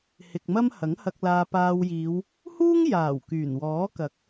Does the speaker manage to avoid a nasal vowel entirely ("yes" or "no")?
yes